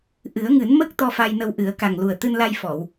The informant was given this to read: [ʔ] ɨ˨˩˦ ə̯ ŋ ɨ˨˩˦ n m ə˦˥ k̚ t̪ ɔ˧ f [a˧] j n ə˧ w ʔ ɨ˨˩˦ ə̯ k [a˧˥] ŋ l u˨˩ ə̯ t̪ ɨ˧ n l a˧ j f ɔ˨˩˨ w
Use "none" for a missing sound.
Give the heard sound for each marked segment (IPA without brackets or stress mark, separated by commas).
ʔ, a˧, a˨˩